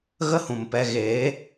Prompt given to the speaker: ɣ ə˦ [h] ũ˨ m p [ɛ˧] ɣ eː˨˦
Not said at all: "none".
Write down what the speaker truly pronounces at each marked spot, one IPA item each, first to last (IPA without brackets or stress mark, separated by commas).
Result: h, ɛ˧